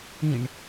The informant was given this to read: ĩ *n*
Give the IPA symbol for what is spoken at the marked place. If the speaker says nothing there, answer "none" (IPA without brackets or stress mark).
ɳ